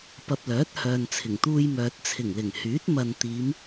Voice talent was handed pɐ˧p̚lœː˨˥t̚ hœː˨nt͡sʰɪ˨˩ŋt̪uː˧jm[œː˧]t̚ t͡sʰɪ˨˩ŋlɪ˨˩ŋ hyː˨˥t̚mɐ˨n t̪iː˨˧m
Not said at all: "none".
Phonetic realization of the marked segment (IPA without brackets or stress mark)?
œː˨